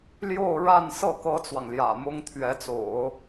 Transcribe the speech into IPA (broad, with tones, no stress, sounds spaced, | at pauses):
l j o˥˧ ʊ̯ ɻ a˥˧ n s ɤ˥˩ k ɤ˥ t͡s w ɑ˨ ŋ l j ä̰˨˩ m ʊ˥ ŋ t̪ʰ ɥ ɛ˧˥ t͡s o̰˨˩˦ ʊ̯